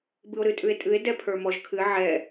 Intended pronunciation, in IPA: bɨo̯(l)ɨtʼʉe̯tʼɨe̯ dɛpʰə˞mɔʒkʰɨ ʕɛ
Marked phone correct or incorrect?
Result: incorrect